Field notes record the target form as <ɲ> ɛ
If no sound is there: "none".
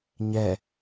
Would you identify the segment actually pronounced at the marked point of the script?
ɲ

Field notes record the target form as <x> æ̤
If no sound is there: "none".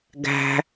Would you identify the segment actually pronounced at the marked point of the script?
ɡ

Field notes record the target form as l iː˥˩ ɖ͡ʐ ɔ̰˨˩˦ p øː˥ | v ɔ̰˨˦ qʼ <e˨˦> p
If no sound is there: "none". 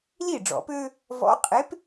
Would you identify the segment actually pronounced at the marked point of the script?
e˨˦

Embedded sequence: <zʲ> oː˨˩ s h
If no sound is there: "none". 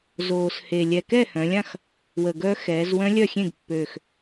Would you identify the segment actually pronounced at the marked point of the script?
z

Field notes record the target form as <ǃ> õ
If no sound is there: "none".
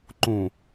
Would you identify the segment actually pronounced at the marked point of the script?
ǃ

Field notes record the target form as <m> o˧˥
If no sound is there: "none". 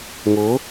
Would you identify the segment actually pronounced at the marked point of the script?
ŋ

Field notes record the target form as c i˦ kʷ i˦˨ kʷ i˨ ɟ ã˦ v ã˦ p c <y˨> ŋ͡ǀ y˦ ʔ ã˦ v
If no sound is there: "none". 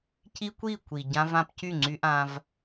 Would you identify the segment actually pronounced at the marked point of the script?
y˦˨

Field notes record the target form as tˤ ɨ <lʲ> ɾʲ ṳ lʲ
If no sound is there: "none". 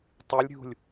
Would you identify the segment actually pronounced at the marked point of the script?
lʲ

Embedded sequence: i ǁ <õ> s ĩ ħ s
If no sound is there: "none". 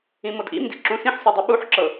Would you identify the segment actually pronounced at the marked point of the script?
ũ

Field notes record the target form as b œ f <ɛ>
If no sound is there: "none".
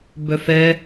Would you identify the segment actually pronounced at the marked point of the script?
ɛ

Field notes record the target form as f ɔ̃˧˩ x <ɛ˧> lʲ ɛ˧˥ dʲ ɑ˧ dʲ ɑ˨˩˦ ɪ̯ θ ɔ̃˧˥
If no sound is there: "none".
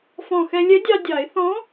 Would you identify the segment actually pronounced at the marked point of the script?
ɛ˧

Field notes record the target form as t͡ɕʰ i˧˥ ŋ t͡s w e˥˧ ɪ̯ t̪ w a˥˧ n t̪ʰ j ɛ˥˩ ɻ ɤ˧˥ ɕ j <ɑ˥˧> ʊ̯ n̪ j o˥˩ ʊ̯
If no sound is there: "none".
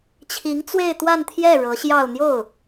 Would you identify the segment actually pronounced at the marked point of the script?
ɑ˥˧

